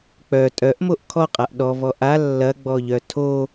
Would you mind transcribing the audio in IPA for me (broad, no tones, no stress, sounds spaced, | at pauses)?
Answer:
k͡p œ tʼ œ ʔ m o ʔ kʰ ɔ qʼ a ʔ ɗ ɔ v ɔ ʔ a lː ɐ ɡ͡b ɔ ʎ œ tʰ o